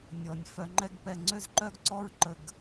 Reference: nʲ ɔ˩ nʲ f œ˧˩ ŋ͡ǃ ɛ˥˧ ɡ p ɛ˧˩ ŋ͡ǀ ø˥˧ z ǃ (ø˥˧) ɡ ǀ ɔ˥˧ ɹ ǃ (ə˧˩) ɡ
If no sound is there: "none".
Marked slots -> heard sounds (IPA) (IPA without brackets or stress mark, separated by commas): œ˥˧, ə˧˩